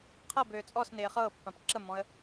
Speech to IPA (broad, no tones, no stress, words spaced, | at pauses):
qʰɤbøː t͡sʼɔsnɪː χɤːpːãp ǁəmɔ̃ə̯